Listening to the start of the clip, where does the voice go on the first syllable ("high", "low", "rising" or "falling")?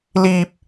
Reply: high